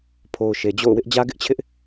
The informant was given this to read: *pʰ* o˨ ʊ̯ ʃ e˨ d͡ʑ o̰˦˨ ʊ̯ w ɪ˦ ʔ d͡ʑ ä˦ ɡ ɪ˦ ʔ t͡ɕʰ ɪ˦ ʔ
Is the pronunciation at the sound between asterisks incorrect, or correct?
correct